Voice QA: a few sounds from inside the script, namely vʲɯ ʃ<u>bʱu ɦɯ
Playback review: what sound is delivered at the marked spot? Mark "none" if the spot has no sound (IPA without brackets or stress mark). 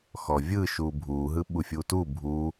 u